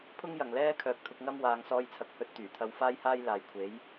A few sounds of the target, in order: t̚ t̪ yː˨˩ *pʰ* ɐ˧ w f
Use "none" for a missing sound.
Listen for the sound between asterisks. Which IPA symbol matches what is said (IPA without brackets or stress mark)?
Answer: t̪ʰ